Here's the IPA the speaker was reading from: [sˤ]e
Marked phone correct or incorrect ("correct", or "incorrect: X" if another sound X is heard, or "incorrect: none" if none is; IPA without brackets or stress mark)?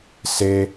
incorrect: s